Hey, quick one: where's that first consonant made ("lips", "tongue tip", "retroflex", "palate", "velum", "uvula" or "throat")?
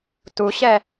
tongue tip